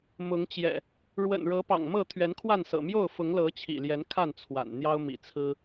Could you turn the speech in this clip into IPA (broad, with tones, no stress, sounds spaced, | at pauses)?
m ʊ˨˦ ŋ t͡ɕ j ɛ̰˨˩ | ɻ w ə̰˨˩ n ɻ ɤ˨˦ p ɑ̰˨˩ ŋ m ɤ˥˨ t̪ʰ ɥ ɛ˨˦ n kʰ w a˥˨ n s ɤ̰˨˩ m j o˥˨ ʊ̯ f ʊ˨˦ ŋ l ɤ˨˦ t͡ɕʰ ḭ˨˩ l j ɛ˨˦ n kʰ a˥˨ n t͡sʰ w a̰˨˩ n n̪ j ɑ˦ ʊ̯ m ḭ˨˩ t͡sʰ ɹ̩˦